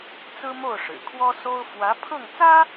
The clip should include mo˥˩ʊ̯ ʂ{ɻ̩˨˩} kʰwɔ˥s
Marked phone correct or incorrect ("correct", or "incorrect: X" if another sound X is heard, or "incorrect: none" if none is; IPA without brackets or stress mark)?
correct